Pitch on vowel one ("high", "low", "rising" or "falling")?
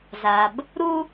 low